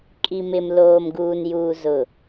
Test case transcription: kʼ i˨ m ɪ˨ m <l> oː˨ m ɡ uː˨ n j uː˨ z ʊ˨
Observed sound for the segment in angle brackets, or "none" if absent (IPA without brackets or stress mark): l